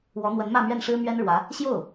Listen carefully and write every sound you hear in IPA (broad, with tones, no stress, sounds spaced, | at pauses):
w ɔ˧˥ n̪ w ə˧˥ n m ä˥˧ m ɥ ɛ˥˩ n ʂ ɻ̩˥ m ɥ ɛ˥ n ɻ w ä˧˥ | ɕ j o˥˩ ʊ̯